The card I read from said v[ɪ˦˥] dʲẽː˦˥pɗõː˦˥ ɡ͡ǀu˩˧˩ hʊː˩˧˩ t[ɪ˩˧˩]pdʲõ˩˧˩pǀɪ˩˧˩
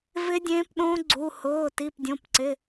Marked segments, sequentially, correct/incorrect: correct, incorrect: i˩˧˩

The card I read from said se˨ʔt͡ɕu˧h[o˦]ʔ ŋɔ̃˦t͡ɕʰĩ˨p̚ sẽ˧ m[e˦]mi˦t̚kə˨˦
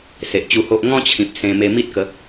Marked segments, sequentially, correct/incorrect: correct, incorrect: e˧

